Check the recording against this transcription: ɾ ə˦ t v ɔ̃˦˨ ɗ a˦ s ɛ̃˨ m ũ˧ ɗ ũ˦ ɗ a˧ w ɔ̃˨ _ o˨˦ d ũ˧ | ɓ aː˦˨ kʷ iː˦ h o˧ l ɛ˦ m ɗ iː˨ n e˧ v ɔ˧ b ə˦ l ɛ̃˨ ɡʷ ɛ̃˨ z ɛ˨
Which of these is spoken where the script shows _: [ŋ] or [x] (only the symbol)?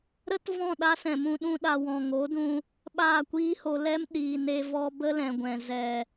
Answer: ŋ